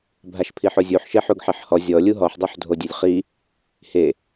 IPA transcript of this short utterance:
bʱ a ʃ pʰ i ħ o zʲ u ħ ʃ e ħ u ɡ ħ i ħ h ɔ zʲ ɔ lʲ u ɦ ɔ ħ dˤ o ħ dʱ o dʲ ø lʲ χ i | h e

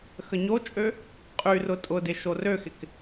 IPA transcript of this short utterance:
x ə ɲ o t͡ʃʼ ø | qʼ y r ʊ tʼ ʊ d ɪ ʃ o r ø x ɪ k

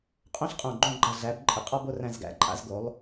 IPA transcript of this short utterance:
qʼ õ˥ ɬ qʼ õ˧˩ ɡ͡ǃ õ˥˧ ɡ͡ǃ a˧˩ ɮ æ˩˧ b ǃʼ ɪ˩˧ qʼ ɔ˥˧ b o˥ r æ̃˥˧ z ɡ æ̰˥ ǃʼ a̰˧ z ɡ o˩˧ lˠ

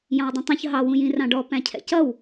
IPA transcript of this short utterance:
j ɑ̃ w dˤ ũ tˤ ũ ç ɦ ɑ w ũ j ĩ r ɑ̃ ɖ ɔ p æ̃ cʰ ɛ̰ c ʌ w

